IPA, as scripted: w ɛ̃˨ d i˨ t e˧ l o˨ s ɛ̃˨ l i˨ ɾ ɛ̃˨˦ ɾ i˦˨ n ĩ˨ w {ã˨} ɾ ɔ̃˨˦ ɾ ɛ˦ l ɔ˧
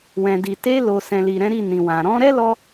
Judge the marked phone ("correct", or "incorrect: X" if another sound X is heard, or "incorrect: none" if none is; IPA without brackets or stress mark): correct